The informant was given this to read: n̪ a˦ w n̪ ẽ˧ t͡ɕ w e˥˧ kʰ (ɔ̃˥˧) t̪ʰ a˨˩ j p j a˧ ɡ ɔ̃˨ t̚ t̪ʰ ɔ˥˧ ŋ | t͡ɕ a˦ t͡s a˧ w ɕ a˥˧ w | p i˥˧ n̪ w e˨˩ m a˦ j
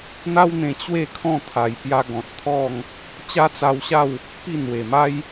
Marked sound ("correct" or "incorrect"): correct